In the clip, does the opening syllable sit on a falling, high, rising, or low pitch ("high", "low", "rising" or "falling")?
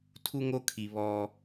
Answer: high